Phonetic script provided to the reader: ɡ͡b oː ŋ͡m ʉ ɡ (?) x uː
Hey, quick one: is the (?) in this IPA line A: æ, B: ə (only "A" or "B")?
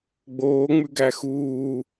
A